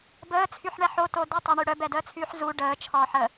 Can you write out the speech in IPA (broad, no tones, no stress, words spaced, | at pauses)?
bəːt͡sʰyħɳɛ ħoto dutˤaɳy ɽœbɛdəːt͡sʰyːħ zu ɖəːt͡ʃʰɔːħə